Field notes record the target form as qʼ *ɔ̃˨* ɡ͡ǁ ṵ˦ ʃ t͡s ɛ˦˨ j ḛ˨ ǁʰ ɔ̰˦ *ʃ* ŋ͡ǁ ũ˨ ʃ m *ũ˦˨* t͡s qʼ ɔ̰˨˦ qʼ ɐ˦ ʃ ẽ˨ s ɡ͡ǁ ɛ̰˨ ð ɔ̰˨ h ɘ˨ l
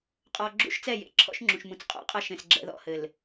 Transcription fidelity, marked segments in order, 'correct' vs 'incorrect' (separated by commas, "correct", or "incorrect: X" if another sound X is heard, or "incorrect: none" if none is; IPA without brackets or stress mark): incorrect: ɔ˨, correct, incorrect: ũ˨